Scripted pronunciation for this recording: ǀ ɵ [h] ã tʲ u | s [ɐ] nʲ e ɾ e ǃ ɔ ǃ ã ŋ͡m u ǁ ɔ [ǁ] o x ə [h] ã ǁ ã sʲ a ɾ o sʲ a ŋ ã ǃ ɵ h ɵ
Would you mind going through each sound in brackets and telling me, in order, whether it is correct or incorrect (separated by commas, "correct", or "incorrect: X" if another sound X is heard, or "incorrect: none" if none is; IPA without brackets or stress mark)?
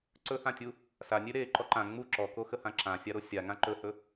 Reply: correct, incorrect: a, incorrect: k, correct